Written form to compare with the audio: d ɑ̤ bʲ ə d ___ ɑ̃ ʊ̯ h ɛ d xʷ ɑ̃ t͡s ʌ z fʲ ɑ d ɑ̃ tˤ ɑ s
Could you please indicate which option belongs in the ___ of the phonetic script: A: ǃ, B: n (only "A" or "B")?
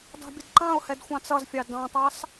A